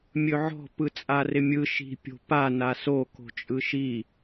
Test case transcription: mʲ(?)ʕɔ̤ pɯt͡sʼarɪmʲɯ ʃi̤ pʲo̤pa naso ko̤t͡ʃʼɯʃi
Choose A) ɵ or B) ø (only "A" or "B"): A